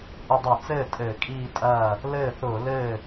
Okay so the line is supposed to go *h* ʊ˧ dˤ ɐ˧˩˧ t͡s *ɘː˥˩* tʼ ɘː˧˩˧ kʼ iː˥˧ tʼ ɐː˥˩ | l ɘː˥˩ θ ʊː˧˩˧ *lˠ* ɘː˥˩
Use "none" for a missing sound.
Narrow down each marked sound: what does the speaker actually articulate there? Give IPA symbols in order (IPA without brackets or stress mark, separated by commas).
ʔ, ɘː˥˩, l